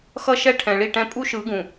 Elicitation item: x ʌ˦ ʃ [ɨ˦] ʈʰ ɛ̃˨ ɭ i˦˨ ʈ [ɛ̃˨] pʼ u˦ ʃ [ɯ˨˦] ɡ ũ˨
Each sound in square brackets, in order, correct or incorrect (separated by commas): incorrect, incorrect, correct